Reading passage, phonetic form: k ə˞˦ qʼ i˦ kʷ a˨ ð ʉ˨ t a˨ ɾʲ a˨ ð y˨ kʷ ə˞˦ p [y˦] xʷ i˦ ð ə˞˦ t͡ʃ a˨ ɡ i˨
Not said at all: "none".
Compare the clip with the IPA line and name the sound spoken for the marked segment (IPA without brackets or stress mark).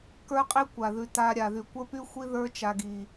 y˦